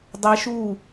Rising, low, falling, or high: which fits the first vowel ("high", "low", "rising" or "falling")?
rising